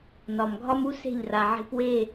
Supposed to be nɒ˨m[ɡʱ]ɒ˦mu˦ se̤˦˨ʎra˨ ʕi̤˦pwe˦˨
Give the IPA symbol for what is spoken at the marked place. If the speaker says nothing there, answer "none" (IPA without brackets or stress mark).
ɡʱ